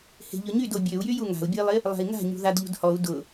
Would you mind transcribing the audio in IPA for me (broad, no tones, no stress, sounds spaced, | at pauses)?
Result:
h e̤ ʎ ʊ ɲ y d o bʲ ø u̯ j y j u ŋ a̤ u̯ bʲ ə i̯ lˠ ɪ | lˠ a̤ i̯ ŋ a̤ ɲ ṳ ð a d ʎ ṳ d h ɔ u̯ d ʊ